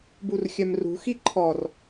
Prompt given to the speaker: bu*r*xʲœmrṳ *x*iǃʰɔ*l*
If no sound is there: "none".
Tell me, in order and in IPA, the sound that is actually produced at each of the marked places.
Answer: r, x, r

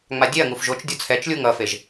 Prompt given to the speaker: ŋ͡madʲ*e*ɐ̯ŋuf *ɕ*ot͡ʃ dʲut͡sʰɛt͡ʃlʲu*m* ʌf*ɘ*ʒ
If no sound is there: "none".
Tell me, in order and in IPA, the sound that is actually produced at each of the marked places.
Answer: e, ʒ, ŋ, e

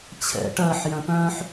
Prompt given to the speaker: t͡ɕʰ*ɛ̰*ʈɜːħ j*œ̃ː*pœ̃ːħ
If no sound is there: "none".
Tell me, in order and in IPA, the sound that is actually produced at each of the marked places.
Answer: ɛ̰, œ̃

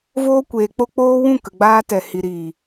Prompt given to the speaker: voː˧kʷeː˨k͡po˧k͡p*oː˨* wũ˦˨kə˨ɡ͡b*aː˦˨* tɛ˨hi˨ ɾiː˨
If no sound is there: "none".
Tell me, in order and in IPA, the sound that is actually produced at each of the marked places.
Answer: oː˧, aː˧

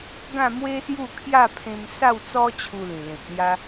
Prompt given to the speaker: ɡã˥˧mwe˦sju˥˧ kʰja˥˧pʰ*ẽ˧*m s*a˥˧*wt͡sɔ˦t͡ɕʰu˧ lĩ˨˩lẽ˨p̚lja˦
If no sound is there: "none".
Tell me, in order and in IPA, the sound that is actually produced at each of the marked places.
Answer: ẽ˧, a˥˧

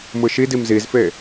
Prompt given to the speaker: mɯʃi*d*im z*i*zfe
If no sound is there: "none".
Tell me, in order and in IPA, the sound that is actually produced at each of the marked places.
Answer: d, i

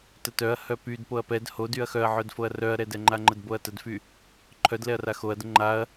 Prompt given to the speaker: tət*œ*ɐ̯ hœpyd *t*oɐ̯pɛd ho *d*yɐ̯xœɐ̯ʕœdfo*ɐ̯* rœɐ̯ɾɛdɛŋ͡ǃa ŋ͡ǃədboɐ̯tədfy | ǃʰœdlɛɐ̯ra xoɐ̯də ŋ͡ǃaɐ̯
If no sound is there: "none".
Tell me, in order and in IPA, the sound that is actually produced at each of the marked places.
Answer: œ, p, d, ɐ̯

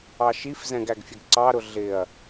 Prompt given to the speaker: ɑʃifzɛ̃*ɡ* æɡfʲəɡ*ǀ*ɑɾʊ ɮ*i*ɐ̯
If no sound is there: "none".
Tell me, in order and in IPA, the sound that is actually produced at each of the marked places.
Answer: ɡ, ǀ, ɪ

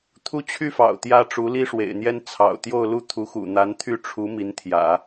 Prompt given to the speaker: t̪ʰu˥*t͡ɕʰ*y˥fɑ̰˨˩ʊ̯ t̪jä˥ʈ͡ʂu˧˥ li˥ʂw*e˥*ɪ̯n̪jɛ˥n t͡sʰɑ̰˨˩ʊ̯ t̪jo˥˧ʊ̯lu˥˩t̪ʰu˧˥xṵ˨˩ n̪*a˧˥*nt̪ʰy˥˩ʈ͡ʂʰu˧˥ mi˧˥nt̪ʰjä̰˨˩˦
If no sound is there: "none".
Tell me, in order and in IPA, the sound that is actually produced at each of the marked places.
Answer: t͡ɕʰ, ḛ˨˩, a˧˥

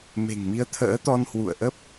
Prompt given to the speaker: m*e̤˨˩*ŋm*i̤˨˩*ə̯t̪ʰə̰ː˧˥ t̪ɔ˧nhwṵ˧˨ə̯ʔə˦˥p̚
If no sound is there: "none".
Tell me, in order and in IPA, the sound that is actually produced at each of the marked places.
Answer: e̤˨˩, i˨˦

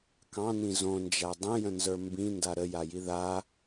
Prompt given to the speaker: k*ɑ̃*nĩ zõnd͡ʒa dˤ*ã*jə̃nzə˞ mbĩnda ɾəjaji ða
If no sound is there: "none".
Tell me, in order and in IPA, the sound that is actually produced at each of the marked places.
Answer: ɑ̃, ə̃

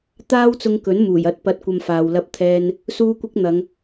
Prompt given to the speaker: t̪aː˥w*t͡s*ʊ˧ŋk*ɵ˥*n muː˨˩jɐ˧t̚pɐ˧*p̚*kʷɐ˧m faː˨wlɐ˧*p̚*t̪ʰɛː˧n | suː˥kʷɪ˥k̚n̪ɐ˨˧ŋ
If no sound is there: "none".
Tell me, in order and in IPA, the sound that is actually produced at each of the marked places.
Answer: t͡s, ɵ˨˥, t̚, p̚

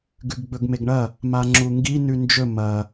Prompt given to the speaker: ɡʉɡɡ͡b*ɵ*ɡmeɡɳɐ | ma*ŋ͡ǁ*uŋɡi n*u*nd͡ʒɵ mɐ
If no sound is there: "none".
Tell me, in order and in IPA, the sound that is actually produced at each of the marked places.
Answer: ɵ, ŋ͡ǁ, ʉ

